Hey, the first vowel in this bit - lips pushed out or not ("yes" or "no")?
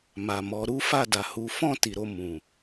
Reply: no